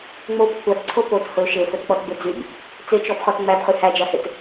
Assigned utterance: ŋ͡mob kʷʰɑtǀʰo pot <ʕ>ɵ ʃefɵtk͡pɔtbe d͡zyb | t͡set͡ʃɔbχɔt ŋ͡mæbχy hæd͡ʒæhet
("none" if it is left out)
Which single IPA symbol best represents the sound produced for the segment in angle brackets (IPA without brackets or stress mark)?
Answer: h